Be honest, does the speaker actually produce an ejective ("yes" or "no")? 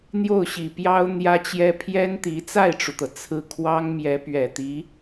no